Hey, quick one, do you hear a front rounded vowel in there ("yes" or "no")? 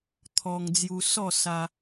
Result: no